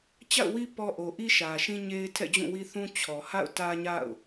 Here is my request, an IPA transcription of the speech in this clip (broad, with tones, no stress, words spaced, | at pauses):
t͡ɕa̰˦˨ʊ̯wi˦ pɔ˦ ʔo˨ʔi˦ʃä˨ ʃĩ˦ɲe˦ɪ̯ tʰɛ̰˦˨d͡ʑũ˦˨wi˦θũ˦ t͡ɕʰɔ˨ha̰˦˨ʊ̯ tä˦ɲa̰˦˨ʊ̯